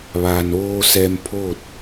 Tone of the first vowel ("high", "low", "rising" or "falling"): low